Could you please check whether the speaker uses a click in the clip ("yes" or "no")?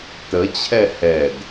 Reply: no